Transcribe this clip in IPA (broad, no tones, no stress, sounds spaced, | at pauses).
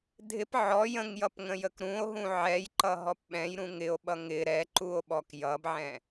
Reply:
dʱ ɪ p ʕ ɔ j ə̃ ŋ j ʌ p ŋ ə̃ j ə k ɾ ũ o̯ ɦ ũ ʕ ɛ j ǃ ʌ ɦ ɔ p ɓ ɛ̃ j ɾ ũ ŋ ɪ o̯ ɓ ʌ ŋ ɪ ɾ ɛ ǃ u o̯ ɓ ɔ k j ʌ b ʕ ɛ̃